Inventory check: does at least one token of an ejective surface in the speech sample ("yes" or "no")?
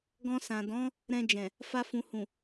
no